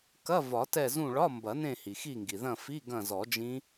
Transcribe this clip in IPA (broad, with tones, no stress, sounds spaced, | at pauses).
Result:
k ɐ˧˥˧ v ɒ˨˩˦ t ɛ˦˨ z ũ˦˨ ɭ ɒ˧˥˧ m b ɐ˨˩˦ n ẽ˦˨ h i˩ x i˦˨ ŋ ɡ i˩ ð ɐ̃˦˨ f i˧˥˧ ɡ ɐ̃˦˨ z ɔ˨˩˦ d͡ʒ ĩ˦˥